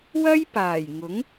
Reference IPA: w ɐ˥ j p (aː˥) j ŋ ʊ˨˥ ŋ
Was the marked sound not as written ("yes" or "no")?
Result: yes